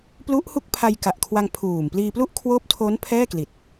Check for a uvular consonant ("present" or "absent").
absent